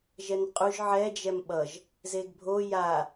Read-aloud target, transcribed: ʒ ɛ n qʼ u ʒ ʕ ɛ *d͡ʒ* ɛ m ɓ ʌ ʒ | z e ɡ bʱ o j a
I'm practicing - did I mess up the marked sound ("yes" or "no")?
no